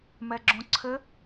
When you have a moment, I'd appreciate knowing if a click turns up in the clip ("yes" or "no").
yes